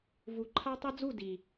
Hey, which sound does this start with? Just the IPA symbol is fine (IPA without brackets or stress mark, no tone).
v